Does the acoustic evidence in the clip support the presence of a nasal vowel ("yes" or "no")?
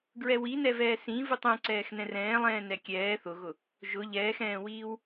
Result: yes